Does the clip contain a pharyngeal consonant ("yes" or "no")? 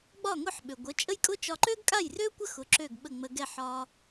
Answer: yes